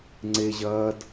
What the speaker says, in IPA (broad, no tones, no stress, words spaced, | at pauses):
ŋ͡ǀe ʑɐːd